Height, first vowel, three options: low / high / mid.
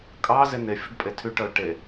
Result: low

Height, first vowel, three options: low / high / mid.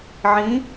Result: high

